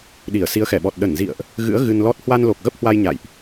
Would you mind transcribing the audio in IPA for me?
ɗ i˧˩ ə̯ s i˨˦ ə̯ x ɛ˧˩ ɓ ɔ˨˩ t̚ ɗ ə˧˩ n z ḭ˧˨ ə̯ ʔ | ɣ ɨ̰˧˥ ə̯ ɣ ɨ˧ n l ɔ˦˥ t̚ h w a˧ n l o˨˩ k̚ ɣ ə˦˥ p̚ h w a˧ j ɲ a̰˧˨ j ʔ

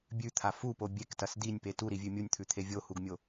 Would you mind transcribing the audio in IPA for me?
bʲ ʉ t̪ʰ a f u p o bʲ e k t ɐ s d i nʲ p e t u ɾ i vʲ ʉ mʲ u nʲ t̪ʰ ʉ t̪ʰ e vʲ o h u ɡ mʲ o

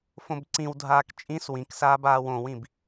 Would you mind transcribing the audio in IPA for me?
f õ b ǀ ĩ w dʱ aː k t͡ʃʼ ĩ s w ĩ k s aː b aː w õ w ĩ b

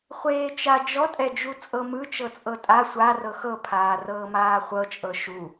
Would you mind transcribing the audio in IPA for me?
χʷ eː t͡ʃ a d͡ʒ ɔ tʼ ɛ d͡ʒ u t͡sʼ ɤ m ɯ t͡ʃ ɤ t͡sʼ ɤ tʼ a sʷ a r ɤ x ɤ pʰ aː r ɤː m aː χʷ ɤ t͡ʃʼ ɤ ʃ u

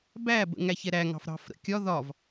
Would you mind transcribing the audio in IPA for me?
b æ b ə̰ ŋ æ ç ɛ ɾ æ ŋ ɑ̤ f ɾ ɑ̤ f ɾ ə̰ kʲ ɒ ð ɒ v

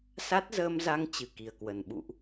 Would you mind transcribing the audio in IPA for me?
s a˦˥ t̚ z əː˧ m z a˧ ŋ t͡ɕ ɨ˨˩ k i˨˩ ə̯ k w ə˨˩ n ɓ ṵ˧˨ ʔ

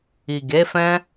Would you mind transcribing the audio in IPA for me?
i˨ ɡ e˨˦ f ɛ̃˦

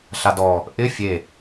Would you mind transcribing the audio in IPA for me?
ɬ a d ɔ | ʔ ɪ fʲ e

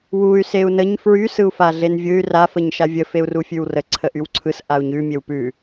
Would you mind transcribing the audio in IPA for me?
w u y̯ s e u̯ n ə ɲ f ɹ y s ɯ u̯ f a ɮ e n vʲ ɯ y̯ r a f ə ɲ ʃ a vʲ ə f e u̯ r u fʲ ʉ w r ə ǀʰ ə ʔ y w ǀʰ ɯ s ʔ a u̯ ɲ ʉ mʲ e w p ʉ

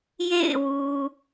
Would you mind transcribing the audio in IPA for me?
j ḛ˦˨ ɪ̯ w u˨

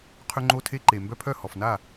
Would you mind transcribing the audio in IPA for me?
qʰ ʏ˧ ŋ͡ǃ o˧ tʰ e˧ ǃ e˨ m b œ˧ pʰ œ˦˨ h ɔ˨ f n a˦˨

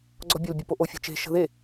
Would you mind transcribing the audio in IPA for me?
ɡ͡ǀ ɔ bʲ o l bʲ ɔ p o ʔ o fʲ ə̤ t͡ʃ e̤ ʃ ə̤ ð e

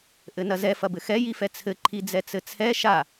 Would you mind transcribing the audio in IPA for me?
ʔ ɘ n ɐ z ɛ f ɐ b ɘ x ɛ j i f ɛ t͡sʰ ɘ ǃʰ i d͡z ɛ t͡s ɘ t͡sʰ ɛ ʃ a

